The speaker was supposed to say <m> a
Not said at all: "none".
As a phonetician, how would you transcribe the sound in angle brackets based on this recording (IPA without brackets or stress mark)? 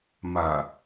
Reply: m